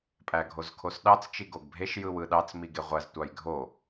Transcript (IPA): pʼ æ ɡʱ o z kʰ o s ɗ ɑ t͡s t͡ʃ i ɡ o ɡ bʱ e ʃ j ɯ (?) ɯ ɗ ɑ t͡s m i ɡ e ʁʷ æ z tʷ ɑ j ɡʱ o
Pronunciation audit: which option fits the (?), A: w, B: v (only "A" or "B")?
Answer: A